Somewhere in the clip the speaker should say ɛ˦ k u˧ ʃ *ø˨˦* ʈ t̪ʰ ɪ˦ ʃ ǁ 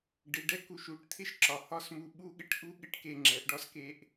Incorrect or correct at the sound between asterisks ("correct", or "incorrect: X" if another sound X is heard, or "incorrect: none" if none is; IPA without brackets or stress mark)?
incorrect: u˨˦